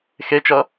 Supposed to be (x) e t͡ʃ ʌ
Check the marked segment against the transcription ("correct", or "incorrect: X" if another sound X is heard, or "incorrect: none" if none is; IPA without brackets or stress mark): correct